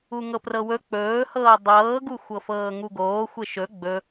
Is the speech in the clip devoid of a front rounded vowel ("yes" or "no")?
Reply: yes